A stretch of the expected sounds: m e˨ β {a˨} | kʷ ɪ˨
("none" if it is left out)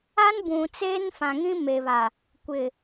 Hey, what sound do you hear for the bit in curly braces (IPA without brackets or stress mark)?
a˨